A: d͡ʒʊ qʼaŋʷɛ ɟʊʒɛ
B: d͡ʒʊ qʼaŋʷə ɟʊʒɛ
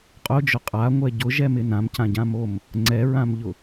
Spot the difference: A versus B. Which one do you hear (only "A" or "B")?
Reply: A